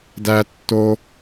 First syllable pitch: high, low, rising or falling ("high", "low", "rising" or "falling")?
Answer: high